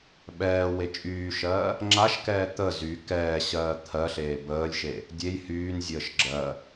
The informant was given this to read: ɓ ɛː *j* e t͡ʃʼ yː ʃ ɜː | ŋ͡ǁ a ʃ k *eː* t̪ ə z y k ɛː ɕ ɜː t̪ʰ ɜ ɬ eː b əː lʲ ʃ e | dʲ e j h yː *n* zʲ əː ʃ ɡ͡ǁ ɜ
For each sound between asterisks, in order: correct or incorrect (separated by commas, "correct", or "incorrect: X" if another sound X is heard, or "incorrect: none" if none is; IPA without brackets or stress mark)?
incorrect: w, incorrect: ɛː, correct